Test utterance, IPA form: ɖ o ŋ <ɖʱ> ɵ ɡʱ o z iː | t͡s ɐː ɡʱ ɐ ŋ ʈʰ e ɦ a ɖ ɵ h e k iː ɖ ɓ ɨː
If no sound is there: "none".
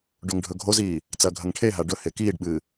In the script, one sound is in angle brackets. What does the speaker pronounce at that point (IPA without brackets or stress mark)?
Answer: ɖʱ